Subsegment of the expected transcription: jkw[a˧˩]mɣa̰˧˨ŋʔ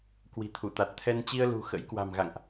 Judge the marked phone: incorrect: a̤˨˩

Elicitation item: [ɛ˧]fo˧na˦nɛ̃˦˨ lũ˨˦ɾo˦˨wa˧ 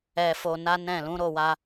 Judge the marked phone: correct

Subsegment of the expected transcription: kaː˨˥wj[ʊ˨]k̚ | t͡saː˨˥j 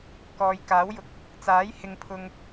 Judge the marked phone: correct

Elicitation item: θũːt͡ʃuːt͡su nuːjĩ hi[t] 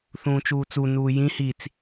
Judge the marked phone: incorrect: t͡s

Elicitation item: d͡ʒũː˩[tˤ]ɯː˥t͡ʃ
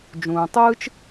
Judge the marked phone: correct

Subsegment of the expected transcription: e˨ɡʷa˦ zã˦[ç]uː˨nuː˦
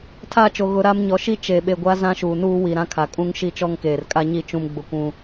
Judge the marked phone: incorrect: ʃ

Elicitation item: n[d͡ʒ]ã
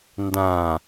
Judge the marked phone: incorrect: d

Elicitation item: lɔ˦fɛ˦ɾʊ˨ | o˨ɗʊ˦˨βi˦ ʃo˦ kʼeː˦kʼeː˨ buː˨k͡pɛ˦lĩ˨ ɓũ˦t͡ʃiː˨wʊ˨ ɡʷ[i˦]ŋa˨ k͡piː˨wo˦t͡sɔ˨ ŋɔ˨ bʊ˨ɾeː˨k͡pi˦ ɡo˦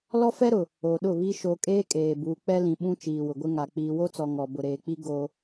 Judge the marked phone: incorrect: ɪ˦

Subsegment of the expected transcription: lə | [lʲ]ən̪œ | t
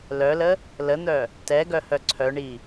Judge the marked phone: incorrect: l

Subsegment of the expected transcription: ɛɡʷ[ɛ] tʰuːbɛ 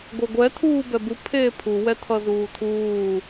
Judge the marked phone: correct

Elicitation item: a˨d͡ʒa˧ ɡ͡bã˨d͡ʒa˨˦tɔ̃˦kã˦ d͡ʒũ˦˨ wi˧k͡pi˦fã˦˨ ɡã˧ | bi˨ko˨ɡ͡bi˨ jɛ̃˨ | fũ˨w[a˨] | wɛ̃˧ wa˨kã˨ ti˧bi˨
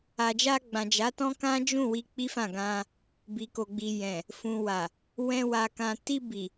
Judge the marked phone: correct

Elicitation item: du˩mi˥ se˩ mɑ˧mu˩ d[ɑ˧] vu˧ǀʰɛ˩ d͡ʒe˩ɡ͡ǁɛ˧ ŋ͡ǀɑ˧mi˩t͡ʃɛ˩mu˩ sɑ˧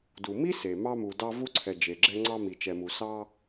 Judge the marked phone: correct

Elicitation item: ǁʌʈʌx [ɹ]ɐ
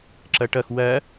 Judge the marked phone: incorrect: w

